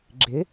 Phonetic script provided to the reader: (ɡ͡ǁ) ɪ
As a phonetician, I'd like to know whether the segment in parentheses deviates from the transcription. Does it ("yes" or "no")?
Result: no